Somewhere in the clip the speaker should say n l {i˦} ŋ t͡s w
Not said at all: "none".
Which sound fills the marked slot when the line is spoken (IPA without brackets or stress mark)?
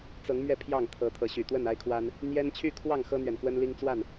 i˦